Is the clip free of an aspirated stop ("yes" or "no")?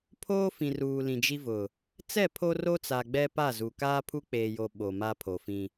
no